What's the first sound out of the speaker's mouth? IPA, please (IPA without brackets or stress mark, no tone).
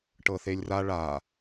ʈ